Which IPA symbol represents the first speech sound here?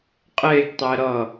qʼ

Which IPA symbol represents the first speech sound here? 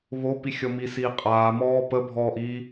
β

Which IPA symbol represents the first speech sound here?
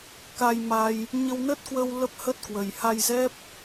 k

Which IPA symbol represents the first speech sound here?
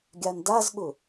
ɡʲ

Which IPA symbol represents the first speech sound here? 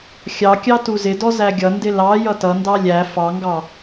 xʲ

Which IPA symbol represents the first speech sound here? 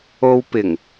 o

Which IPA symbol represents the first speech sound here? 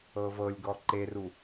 ɤ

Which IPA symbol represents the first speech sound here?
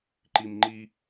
ǃ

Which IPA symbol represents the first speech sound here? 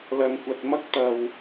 l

